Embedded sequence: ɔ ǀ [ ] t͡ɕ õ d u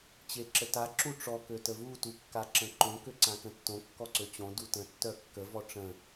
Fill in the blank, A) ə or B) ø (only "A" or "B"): B